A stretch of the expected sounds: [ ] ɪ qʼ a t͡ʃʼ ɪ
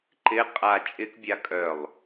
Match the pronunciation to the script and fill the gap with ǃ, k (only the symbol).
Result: ǃ